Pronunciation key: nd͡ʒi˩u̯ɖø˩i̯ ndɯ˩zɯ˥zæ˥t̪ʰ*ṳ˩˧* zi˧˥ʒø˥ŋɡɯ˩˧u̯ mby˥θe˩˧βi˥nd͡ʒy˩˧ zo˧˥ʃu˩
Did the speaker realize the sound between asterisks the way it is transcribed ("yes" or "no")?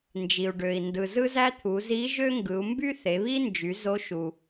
no